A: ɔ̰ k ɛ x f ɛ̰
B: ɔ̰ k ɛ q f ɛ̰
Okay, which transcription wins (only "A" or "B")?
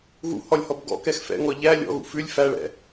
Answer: A